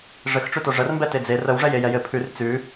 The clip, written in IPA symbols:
ʐɘxʈ͡ʂʉto ʐərmbɛ ted͡ze rəwʐɛ jejɛjɘ pʰʉr t͡sʉ

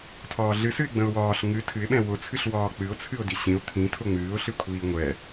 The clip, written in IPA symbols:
tʰɒːɮɨsɨɪ̯ ɡ͡bə̃ʊ̯wɒːɬ ŋɨ tʰɨɪ̯ɓɛ̃ wʊt͡sʰɨɬ wɒːk͡pɨʊ̯t͡sʰɨʊ̯ diɕĩʊ̯ t̪ʰĩ tʰʊŋ͡mɨːʊ̯ɬɨkʷʰiː ŋʷɛ

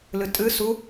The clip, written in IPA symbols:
lɨtʼɨ su

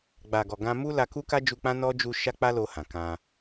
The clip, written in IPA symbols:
ɡ͡ba˨ɡɔ˨ɡã˧ mu˦la˧ku˦ka˦ d͡ʒu˧k͡pã˦nɔ˦ d͡ʒu˧ ʃa˦k͡pa˦lo˧ hã˨kã˧

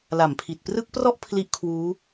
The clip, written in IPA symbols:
la˨˩mpʰi˨˩t̚ prɯ˦˥k̚prɔ˥˩ʔ pʰli˥˩ʔkʰwuː˦˥

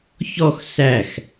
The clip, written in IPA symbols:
çɔx sæx

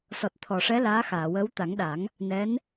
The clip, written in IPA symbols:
sɔ˨˩t̚t̪ʰɔ˨˩ʂɛ˧˥ laː˧˥ xaː˨˩˨wəː˧˥w t̪a˨˩˦ŋɗa˨˩˦ŋ | nɛ˧˥n

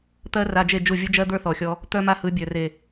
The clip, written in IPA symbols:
t̪ɜ˦ra˧d͡ʒe˦˨ d͡ʒu˦˨vʲɯ˦d͡ʒɜ˦ d̪ə˞˦θɔ˨xʲɔ˧ | t̪œ˦ma˦hɯ˨˦bʲœ˨ re˨

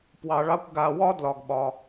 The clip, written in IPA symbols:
pwɑ˧ɭɑ˥kʷ ɡa˧wɒ˥ dlɒ˧ɡɓɒ˧

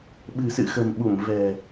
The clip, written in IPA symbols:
ɓɨ̤˨˩sɨ̰˧˨xə̤˨˩mɓu˧˩m vɛ̤˨˩

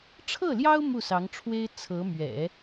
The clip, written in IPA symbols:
ʈ͡ʂʰɤ˥˩ljɑ˥ʊ̯ mu˥˩sɑ˧˥ŋʈ͡ʂʰwe˥ɪ̯ t͡sʰɤ˧˥ mɥɛ̰˨˩˦

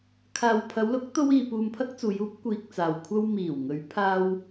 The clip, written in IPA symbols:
kʰaː˨wpʰɐ˨˧wlʊ˨˥k̚ t̪o˥wiː˧ puː˧mpʰɐ˥k̚t͡suː˨˧j uː˥p̚ kʷiː˧k̚t͡saː˨wkʷʰɐ˥w miː˨˩wŋɵ˨˧ɥpʰaː˧w

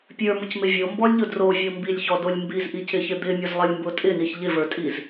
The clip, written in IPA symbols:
pʲə˞mʊcmɪ vʲombɔlʲʎʊ drovʲo mbilʲçɔdolʲ mbizʔicɪçɪ d̪ɪmʲʊzlˠɪlʲmbʊ tʼɪniç ʎɪvə˞tʼiz

